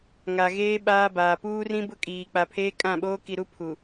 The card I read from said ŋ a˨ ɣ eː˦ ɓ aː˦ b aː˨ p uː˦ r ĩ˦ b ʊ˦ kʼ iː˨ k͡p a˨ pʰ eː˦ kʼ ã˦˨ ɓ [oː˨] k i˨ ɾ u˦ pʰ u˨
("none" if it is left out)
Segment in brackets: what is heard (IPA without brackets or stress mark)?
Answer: oː˦